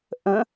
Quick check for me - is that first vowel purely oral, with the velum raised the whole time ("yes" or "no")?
no